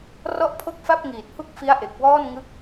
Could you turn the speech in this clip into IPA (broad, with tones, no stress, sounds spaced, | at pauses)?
r ɔ˥˩ ʔ pʰ o˥˩ k̚ f a˥˩ p̚ ŋ iː˨˩ t̚ h u˥˩ k̚ f i˦˥ a̯ ʔ e˨˩ k̚ w ɔː˥˩ n ŋ ɯ˦˥ k̚